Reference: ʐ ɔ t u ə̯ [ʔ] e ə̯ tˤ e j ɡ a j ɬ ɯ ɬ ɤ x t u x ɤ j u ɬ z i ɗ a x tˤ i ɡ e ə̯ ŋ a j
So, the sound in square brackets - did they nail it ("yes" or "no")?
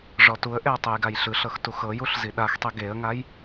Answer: yes